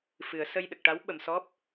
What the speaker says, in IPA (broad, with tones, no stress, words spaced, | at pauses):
fɨ˨˩˦ə̯sə˧j ɗə˨˩k̚ʈa˧˥wɓə˨˩msɔ˦˥p̚